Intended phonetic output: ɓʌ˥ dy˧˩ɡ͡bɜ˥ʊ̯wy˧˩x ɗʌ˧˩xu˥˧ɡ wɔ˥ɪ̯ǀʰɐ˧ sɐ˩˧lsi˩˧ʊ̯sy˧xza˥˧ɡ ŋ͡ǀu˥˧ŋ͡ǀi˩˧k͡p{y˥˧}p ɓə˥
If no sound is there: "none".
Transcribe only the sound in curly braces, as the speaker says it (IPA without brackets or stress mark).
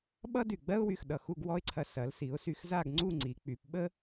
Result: y˩˧